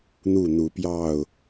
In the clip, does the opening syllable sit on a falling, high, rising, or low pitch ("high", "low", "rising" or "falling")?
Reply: falling